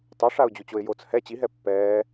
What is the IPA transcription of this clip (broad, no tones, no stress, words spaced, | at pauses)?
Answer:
tˤuʂaʊ̯d͡ʑut͡ɕoɪ̯ jot͡s hɛ t͡ɕiɦɛ pːɛː